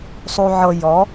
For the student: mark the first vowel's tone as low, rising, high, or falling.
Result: low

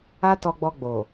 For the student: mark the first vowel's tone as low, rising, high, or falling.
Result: high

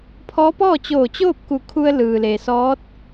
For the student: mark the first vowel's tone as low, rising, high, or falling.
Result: rising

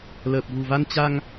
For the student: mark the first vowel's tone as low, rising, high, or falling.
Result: low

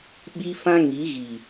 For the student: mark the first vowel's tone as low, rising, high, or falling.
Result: high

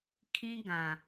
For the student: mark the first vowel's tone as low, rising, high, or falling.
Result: high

